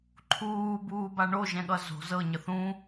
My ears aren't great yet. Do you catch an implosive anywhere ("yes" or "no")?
yes